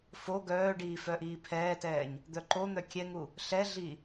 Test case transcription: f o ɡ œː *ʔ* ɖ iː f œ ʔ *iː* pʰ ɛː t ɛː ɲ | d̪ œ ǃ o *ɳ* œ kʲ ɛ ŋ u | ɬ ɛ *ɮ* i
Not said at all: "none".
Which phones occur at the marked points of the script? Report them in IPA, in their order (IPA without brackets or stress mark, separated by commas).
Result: none, iː, n̪, ɮ